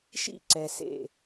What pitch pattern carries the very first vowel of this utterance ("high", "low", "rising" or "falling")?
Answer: falling